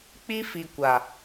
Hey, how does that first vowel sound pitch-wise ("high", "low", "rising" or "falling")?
high